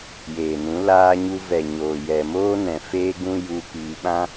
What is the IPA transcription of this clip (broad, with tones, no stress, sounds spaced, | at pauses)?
j eː˨ n ũ˨˦ l aː˦ ɲ u˦ v ɛ˨ ɲ oː˨ j ɛ˨ m oː˦ n ɛ̃˨ f eː˦ ɡ ũ˦ j u˧ p iː˧ ɓ ã˦